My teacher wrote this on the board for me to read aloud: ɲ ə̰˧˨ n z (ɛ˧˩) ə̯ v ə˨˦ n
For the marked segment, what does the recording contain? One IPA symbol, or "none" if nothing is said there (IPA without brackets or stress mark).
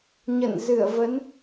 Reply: ɨ˧˩